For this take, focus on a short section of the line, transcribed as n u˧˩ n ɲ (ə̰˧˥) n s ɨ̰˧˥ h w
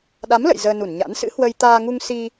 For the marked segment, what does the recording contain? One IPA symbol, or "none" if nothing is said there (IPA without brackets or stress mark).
a̰˧˥